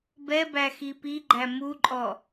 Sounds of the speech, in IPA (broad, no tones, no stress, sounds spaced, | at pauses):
b ɛ b æ x i p i ɡ͡ǃ æ m u ǃʼ ɔ